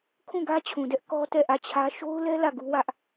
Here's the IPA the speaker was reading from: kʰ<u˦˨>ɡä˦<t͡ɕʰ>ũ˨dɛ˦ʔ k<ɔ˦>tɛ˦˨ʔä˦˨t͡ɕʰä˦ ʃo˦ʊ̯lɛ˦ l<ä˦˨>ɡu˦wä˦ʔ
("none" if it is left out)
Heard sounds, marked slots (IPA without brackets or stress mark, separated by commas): ũ˦˨, t͡ɕʰ, ɔ˦, ä˦˨